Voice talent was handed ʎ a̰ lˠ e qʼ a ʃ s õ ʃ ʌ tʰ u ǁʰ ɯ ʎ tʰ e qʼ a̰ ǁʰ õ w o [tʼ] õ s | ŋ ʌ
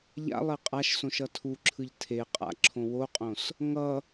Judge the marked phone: incorrect: qʼ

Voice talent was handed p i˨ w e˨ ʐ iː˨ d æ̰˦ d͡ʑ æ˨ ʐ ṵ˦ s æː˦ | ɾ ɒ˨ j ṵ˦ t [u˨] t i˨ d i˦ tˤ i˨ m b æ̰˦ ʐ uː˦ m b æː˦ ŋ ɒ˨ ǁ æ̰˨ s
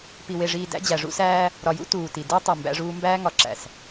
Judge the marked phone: incorrect: uː˨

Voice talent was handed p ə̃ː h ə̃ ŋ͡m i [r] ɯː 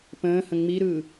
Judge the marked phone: incorrect: ɾ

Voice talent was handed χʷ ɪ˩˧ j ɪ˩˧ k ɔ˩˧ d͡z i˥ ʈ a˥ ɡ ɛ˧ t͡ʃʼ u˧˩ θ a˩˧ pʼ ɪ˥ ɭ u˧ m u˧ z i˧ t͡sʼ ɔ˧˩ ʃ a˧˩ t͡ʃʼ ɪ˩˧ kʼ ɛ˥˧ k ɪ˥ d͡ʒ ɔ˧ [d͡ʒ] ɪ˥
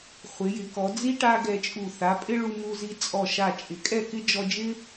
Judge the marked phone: correct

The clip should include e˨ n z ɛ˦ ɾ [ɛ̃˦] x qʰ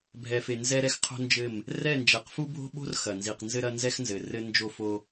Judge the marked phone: incorrect: ɛ˦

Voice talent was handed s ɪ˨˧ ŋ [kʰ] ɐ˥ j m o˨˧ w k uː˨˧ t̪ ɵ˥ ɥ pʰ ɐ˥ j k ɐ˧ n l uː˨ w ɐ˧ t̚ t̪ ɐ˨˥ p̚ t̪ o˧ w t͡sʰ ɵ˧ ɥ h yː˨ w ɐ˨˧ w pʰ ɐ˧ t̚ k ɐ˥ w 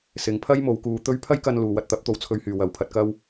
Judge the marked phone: incorrect: pʰ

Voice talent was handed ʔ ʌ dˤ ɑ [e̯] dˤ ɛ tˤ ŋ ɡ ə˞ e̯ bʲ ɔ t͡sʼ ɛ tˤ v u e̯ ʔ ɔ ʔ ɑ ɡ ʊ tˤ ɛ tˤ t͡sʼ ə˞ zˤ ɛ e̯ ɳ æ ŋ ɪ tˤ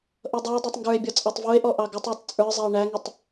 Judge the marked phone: correct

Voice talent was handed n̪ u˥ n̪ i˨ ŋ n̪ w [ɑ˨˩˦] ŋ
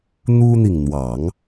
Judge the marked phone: correct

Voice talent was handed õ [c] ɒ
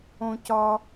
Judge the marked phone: correct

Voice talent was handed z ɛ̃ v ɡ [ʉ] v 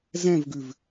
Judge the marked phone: correct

